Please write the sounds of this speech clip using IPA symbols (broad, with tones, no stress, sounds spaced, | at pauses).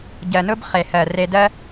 ɟ ɜ˩ n ʊ˦ b χ e˩ h ɜ˩ r e˨ d ɜ˦